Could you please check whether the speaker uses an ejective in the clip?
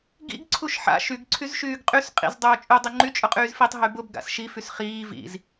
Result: yes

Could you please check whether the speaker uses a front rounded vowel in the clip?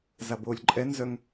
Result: yes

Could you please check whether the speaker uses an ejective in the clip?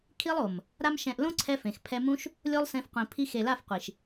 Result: no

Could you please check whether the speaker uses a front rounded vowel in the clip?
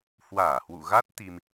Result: no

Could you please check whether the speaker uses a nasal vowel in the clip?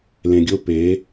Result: yes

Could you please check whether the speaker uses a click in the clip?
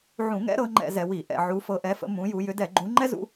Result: yes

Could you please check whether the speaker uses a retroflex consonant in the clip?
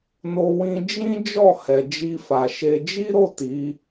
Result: no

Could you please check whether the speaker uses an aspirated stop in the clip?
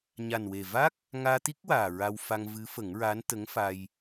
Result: no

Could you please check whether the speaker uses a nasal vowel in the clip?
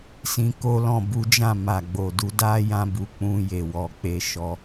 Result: yes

